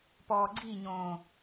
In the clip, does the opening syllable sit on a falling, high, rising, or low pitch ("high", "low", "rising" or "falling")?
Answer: low